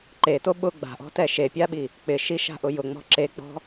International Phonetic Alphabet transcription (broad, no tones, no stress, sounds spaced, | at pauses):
ǃ e t o ɓ ʊ ɡ͡b a̤ ʔ ɔ̤ t ɛ ʃ e pʲ a ɓ i | k͡p ɪ ʃ i ʃ a̤ ʔ ʊ j ʊ ŋ͡m ɔ̤ ǁ e k͡p ɔ̤